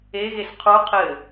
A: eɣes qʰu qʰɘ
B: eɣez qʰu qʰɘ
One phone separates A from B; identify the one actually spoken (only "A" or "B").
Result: A